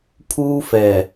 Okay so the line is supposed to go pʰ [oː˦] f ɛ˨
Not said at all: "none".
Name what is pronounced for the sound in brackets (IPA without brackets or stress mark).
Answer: uː˦